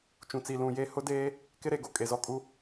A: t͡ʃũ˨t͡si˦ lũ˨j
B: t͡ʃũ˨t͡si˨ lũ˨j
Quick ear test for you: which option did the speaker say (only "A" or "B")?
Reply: B